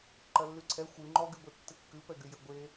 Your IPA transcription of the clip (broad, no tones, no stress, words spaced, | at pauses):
ǃɐlːyǀʰɛ xʷɨ ŋ͡ǃɔɡyɡʷe tːɨkːɨpɛɡy jəɡʷe